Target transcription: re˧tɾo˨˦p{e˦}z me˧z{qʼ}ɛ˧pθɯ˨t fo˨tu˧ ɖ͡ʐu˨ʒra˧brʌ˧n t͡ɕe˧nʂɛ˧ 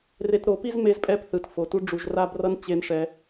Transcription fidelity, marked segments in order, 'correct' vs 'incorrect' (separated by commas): incorrect, incorrect